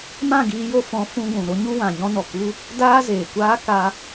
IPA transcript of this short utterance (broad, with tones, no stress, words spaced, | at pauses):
mã˦˨ɡiː˧jo˧ fɔ̃˨˦ fũ˧ɡʷũ˨ ɾo˦ɲu˦ wã˨ɲɔ̃˧nɔ˨ ku˦ | daː˦zeː˨kʷaː˦ ka˧